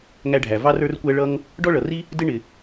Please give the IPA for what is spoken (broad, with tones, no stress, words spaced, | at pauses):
ŋæ˧ɖʱæ˩ vɑ˥rə˞˥rkʷæ˥ ɭʌ˥ŋ | ɖɔ˥ɭʌ˩ri˥ | dɪ˥ɳɪ˩